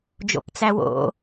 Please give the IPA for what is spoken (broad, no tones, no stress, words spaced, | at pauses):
d͡ʒo̰pt͡sæwo̰